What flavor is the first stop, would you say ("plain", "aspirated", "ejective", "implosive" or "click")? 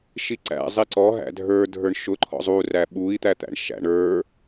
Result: click